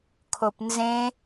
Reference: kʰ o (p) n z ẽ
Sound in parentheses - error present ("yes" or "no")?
no